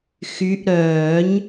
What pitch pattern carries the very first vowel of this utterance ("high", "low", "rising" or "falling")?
rising